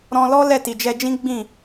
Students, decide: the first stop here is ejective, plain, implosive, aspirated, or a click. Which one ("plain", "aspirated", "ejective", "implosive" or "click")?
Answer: plain